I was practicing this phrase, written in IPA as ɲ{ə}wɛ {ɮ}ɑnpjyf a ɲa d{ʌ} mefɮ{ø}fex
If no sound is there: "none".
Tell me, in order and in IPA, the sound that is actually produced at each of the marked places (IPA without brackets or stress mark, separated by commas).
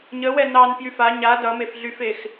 ə, n, ʌ, y